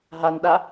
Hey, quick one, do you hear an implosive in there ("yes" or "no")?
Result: yes